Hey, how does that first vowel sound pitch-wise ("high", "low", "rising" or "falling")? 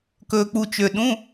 low